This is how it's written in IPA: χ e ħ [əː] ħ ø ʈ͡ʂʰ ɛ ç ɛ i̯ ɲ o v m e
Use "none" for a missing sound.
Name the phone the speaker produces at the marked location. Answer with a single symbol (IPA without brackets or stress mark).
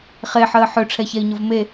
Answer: əː